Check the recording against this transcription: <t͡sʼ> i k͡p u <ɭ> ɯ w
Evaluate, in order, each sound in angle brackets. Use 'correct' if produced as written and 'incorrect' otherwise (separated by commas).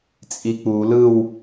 correct, incorrect